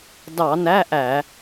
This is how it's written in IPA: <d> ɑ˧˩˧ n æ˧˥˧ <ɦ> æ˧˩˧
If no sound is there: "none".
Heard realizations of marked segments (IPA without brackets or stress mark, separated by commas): d, ʔ